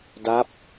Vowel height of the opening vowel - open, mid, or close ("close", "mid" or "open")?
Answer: open